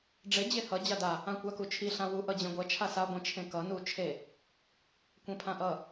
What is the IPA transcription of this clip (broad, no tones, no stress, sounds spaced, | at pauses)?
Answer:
ɖ͡ʐ e d͡ʑ e h ʌ d͡ʑ a d a | ã kʷ a k u t͡ʃʰ i ɬ ã w u ʔ ʌ d͡ʑ ẽ ɡʷ ɛ t͡ʃʰ a s a ɡʷ ĩ t͡ʃʰ ẽ k ʌ n u t͡ʃʰ e | kʷ ẽ pʰ ã ʔ ʌ